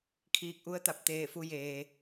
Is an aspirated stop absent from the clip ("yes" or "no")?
no